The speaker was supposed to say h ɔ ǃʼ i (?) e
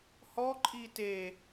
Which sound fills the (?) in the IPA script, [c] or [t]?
t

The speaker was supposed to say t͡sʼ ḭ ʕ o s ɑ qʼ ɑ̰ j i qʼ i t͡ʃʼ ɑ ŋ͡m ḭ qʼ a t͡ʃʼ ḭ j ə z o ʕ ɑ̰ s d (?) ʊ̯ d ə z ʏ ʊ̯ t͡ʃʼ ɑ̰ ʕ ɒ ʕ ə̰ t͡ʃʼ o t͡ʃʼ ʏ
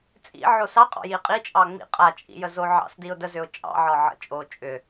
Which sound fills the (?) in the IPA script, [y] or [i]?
i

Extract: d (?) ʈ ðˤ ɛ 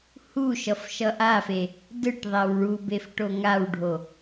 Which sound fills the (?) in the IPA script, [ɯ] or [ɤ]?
ɯ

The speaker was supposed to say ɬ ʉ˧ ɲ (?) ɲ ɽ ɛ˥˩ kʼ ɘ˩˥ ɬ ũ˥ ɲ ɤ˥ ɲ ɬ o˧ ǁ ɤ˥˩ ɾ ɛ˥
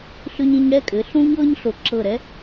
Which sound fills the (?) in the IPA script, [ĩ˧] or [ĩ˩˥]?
ĩ˧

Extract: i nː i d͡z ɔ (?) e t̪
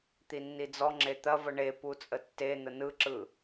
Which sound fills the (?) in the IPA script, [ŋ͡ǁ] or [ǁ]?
ŋ͡ǁ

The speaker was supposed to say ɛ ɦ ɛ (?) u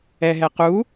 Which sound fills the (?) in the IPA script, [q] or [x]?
q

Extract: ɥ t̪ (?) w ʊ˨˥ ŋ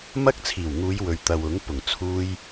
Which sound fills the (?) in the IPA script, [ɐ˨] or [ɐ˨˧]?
ɐ˨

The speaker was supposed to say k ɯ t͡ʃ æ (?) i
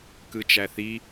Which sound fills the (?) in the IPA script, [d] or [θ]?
θ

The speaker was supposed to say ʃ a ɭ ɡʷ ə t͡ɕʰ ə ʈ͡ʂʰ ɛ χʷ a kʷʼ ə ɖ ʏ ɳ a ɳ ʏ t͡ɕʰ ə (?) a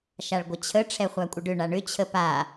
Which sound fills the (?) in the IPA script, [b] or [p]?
p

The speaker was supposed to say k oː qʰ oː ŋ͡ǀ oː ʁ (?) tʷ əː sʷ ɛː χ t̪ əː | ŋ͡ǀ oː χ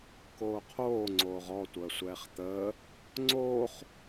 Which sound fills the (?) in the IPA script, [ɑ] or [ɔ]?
ɔ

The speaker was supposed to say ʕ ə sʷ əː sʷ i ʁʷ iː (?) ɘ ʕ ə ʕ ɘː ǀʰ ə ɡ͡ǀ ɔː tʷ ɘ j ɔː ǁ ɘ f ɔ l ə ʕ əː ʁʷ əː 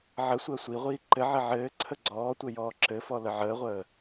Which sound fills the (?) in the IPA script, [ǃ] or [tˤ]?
ǃ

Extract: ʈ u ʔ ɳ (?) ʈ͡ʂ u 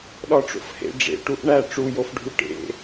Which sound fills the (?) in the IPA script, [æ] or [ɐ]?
æ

